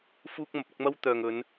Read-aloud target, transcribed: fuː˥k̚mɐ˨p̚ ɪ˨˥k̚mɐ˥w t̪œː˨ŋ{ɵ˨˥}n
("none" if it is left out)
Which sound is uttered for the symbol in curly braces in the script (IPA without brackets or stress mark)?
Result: ɵ˨˧